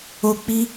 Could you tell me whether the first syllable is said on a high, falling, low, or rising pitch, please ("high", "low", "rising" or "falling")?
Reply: falling